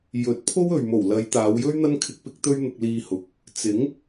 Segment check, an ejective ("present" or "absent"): absent